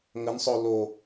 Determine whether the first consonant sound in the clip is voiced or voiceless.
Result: voiced